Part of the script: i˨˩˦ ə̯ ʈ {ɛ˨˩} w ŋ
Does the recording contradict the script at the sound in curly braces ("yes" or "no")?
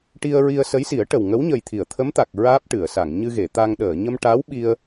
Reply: yes